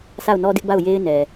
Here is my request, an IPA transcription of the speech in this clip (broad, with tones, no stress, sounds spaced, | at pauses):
s a˦˨ ʊ̯ n ɔ˦ d ɪ˦ ʔ b a˦˨ ʊ̯ j e˦ ɪ̯ n ɛ˨